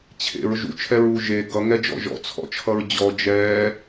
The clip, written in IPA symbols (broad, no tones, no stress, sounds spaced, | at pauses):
t͡ɕʰ ḛ ɹ ʒ ṵ t͡ʃʰ ɛ ɹ uː ʒ e ɡ ʌ ŋ ɛ d͡ʒ ɔ̰ ʒ ɔ̰ t͡sʰ ɔ̰ t͡ʃʰ ʌ ɹ d͡ʑ ɔ d͡ʒ ɛː